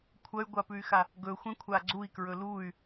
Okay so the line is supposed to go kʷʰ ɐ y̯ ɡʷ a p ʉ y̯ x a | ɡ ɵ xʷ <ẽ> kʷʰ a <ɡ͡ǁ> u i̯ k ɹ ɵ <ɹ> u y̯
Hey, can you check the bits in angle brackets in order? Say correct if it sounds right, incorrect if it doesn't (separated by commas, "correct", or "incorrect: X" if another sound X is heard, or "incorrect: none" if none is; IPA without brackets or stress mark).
correct, incorrect: ɡ͡ǀ, incorrect: l